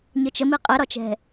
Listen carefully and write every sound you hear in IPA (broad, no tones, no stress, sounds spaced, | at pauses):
ɲ ə t͡ʃ ə m i qʼ ɛ ɾ ɒ t͡ʃ ɛ̤